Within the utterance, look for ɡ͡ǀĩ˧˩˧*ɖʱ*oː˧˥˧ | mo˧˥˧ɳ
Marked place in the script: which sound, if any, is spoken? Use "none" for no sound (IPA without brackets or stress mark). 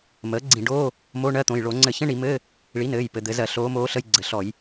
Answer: ɖ